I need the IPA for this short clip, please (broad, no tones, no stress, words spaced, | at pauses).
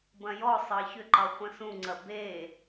bɐ̃jɔsˤɑ çʏǃɑ χʷɐ̃sũŋ͡ǀɐ be